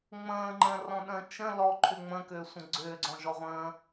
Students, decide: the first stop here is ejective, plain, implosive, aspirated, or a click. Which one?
click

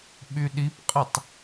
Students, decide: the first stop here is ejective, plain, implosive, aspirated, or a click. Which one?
implosive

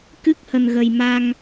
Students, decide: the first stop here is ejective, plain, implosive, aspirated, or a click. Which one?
plain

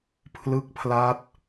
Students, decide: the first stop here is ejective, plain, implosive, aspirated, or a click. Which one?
aspirated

